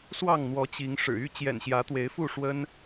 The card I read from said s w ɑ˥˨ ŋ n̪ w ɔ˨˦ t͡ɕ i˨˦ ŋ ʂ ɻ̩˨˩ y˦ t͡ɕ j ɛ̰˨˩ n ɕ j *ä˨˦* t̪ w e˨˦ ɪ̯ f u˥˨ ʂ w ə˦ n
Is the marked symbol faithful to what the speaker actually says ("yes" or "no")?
yes